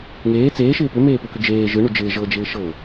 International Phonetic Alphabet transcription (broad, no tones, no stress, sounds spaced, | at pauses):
ŋ eː t͡s eː ʃ ɪː p ʏ m eː p ɯ k ʏ d͡ʒ eː ʒ ɯ ɳ u d͡ʒ ɪː ʒ ɤ d͡ʒ ɪː ʃ ɤ